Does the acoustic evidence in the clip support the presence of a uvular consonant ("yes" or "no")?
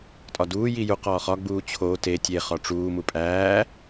yes